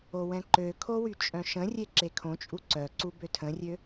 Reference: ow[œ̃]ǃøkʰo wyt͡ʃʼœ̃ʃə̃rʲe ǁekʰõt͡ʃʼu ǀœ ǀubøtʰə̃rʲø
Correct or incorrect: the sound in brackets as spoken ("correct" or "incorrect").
incorrect